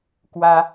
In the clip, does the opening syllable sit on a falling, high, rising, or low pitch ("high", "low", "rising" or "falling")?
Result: high